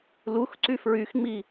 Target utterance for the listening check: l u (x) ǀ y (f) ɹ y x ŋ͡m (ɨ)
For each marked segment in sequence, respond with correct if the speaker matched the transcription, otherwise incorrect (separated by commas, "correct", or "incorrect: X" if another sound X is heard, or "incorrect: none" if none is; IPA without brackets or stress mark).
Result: correct, correct, incorrect: i